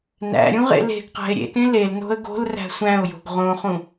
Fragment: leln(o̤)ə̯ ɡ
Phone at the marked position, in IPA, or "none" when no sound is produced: o̤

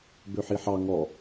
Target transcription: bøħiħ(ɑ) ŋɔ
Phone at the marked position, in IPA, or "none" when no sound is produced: ɑ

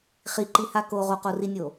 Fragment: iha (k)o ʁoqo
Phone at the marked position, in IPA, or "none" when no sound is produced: k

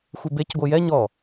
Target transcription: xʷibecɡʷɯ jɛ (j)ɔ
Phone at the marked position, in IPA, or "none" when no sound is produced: ɲ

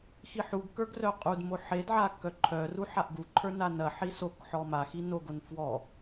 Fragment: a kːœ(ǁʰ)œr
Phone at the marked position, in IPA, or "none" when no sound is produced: ǃʰ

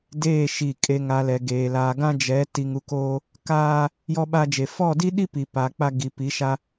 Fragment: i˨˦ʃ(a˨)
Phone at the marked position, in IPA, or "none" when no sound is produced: a˦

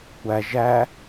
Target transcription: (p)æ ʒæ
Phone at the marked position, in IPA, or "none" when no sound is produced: kʷ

